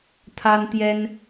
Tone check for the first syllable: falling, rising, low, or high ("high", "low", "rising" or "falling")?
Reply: high